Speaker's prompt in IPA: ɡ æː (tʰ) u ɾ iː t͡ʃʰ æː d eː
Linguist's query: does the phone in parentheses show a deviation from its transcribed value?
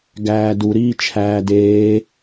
yes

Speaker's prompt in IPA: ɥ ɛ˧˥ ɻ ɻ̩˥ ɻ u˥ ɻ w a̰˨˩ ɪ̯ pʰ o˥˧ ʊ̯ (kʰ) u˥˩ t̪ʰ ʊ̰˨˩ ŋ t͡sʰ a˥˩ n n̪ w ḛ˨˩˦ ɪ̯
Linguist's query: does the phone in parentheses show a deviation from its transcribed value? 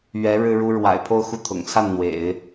yes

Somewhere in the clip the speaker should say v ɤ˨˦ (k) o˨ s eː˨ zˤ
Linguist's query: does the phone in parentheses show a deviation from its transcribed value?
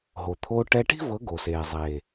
yes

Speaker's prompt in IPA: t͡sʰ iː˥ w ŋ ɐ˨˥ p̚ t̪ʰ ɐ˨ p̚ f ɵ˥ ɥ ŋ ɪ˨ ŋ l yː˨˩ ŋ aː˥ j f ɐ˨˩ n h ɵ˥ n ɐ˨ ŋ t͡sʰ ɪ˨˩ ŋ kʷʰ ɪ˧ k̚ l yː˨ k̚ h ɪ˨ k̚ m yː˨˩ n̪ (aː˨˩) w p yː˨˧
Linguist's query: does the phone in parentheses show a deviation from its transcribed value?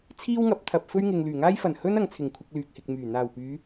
no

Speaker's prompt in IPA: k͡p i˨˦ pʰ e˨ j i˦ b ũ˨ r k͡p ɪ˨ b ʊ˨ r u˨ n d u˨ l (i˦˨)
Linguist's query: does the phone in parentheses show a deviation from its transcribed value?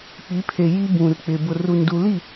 no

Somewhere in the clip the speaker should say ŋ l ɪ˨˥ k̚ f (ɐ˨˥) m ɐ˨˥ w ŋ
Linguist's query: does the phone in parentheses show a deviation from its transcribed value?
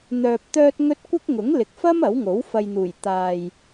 yes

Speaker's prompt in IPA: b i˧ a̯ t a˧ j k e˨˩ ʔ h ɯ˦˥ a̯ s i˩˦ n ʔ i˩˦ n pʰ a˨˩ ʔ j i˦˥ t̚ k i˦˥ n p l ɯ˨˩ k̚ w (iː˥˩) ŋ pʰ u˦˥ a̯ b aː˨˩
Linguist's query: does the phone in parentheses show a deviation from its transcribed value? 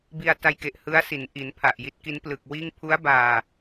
no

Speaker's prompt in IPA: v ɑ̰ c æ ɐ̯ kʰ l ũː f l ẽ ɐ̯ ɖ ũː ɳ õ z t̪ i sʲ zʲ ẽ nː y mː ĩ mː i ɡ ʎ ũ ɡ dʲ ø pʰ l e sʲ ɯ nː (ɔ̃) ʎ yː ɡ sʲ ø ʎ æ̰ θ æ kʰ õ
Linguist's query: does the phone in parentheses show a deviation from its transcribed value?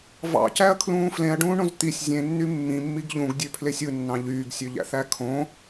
yes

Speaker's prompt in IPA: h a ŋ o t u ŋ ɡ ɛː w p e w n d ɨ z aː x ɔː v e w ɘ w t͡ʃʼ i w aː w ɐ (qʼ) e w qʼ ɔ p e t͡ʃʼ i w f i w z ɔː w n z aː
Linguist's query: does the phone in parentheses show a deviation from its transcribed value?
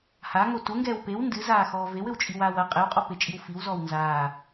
no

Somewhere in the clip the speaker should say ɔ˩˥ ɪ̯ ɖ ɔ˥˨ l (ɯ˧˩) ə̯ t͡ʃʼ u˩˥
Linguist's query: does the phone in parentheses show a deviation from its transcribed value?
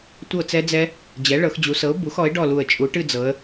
yes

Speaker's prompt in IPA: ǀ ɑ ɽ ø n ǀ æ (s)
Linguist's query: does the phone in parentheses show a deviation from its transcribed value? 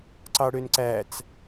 yes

